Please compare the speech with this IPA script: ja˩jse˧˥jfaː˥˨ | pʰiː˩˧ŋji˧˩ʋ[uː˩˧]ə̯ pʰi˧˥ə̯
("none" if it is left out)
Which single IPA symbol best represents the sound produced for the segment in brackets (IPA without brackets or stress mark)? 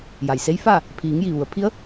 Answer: u˩˧